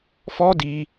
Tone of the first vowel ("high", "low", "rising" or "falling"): high